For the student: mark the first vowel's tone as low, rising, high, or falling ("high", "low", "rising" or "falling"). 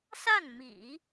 falling